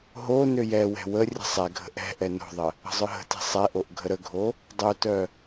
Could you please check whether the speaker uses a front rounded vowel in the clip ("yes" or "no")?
yes